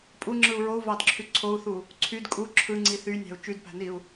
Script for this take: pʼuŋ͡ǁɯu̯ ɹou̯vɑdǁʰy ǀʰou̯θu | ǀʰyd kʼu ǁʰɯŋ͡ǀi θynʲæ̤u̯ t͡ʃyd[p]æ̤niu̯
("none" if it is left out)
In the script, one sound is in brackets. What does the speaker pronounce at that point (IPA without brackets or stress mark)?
p